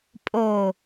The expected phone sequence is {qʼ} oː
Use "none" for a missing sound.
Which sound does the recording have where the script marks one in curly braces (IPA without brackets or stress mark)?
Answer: pʼ